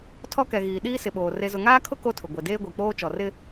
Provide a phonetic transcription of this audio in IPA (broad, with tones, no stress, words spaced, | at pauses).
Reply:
tʰɔ˦kɛ˨ɣiː˨ ɗiː˦sɪ˨ɓoː˨ re˨zʊ˨ŋaː˦kʰʊ˦ ko˦tʰʊ˨ ɡʷe˨deː˦ɡʷi˨ k͡poː˦t͡ʃɔ˨ rɪ˦